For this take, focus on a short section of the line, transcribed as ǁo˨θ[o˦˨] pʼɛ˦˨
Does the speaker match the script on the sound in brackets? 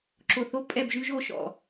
yes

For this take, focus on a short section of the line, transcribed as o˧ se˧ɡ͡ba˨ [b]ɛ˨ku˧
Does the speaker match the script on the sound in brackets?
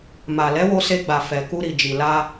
no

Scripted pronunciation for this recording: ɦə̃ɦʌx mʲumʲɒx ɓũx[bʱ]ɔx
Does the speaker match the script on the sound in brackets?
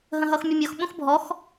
yes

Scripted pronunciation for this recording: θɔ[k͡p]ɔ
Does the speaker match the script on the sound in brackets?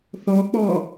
yes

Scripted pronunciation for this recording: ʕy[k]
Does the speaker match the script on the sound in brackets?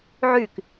yes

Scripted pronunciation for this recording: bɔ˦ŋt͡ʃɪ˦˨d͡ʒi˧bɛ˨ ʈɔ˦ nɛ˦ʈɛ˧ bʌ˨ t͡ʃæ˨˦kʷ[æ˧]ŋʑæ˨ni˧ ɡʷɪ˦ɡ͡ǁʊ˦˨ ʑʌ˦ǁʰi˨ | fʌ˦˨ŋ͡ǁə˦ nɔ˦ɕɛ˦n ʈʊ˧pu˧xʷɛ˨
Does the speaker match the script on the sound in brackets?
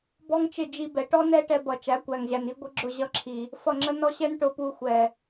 no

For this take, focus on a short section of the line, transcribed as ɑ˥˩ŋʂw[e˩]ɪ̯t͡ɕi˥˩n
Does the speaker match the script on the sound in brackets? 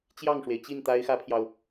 yes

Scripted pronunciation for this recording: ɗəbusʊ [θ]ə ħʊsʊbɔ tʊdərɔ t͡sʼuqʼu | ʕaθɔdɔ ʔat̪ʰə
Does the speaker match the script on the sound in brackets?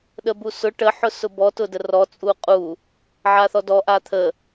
no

